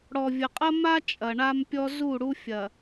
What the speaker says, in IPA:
ɽ ɔ˨ vʲ ə˨ qʼ ɐ˦ m a˦ t͡ʃʼ ɐ˨ ɳ a˦ m pʲ ɔ˦ z u˦˨ ɽ u˦ fʲ ɐ˨

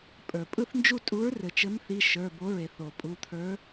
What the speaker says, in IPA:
pʼ ə˞˩ pʼ ɯ˥˨ θ n d͡ʒ u˥˨ tʼ u˨˥ ɹ r ɘ˩ t͡ʃ ɘ˨˥ m θ i˩˧˩ ʃ ə˞˩˧˩ b o˨˥ ɹ e˩ θ o˩ pʼ u˩˧˩ t̪ʰ ə˞˨˥

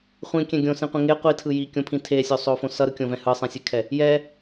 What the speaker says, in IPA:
χʷ ĩ kʲ ɛ̃ ɡʲ õ s ĩ qʷ ĩ ŋ e qʷ i tʰ ɯ j i kʲ õ pʰ ĩ tʰ e sʲ o sˤ o f õ s ʌ ɾ ɯ kʲ õ v ɛ̃ h ɯ sˤ ɛ̃ sʲ e kʰ ɛ | j ɛ

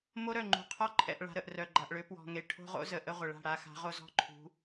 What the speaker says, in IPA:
m o˦ ɾ œ˦˨ ŋ͡ǃ ṳ˨ qʰ ɔ˦ ǃʰ ɛ̰˨ ʔ ɭ a̤˨ ɾ ə˨ ʔ r œ˨ ɡ͡ǃ a˨ ʔ ɭ ø˨˦ p w ɔ̤˨ ŋ e˨ ʈʰ o̤˦ ʁ o̰˦ z ə˨ ʔ ə˦ ʁʷ ə˨ ɭ a̤˦˨ ɽ a˨ x a̤˨˦ ʁ o˦ z ɔ̤˦ ǃʰ ṳ˨˦

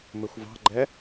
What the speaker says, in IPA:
m ɪ xʷ v ɑ̤ ɡ͡ǃ ɛ

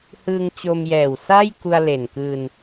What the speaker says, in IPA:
h ɯː˧ ŋ t͡ɕ o˧ m j ɛː˨˩ w s a˥˩ j k u˧ a̯ l e˨˩ n k ɯː˧ n

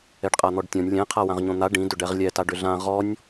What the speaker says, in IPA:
ɛ ɖ qʼ a n̪ ɔ ɖ tʲ ɔ̃ nʲ lʲ ɛ̃ qʰ a w ã ʁ ɲ õ n̪ a ɖ ĩ d ʏ ɖ ɛ ʁ lʲ ɛ t a ɖ ʏ ɮ ã ʁ ɔ nʲ

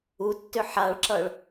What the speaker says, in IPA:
u tː ʏ ħ a ɭ ǁ ʌ ɭ

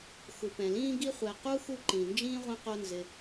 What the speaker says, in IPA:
x u˩ p ɛ̃˩ l ĩː˦ ɡ i˦ χʷ ɛ˨ q u˥ x u˦ ǃ ĩ˩ n d͡ʒ ĩː˥ ʁʷ ɛ̃˦ q o˦ n z ɪ˨

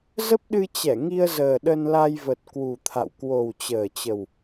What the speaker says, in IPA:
z ə˦˥ p̚ ɗ ɨ˧ t͡ɕ ɛ˧˩ ŋ i˧ ə̯ z əː˨˩ ɗ ə˧ n l a˧ j v ə˨˩ t̚ k w u˨˩ t̪ʰ a̰˧˨ w k w o˨˩ w t͡ɕ əː˨˩ t͡ɕ ə˨˩ w

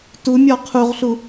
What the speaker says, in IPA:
t u mʲ ɔ qʰ u ʁ ɬ u

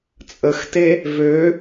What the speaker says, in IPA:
t͡sʼ ə x t e | v ø

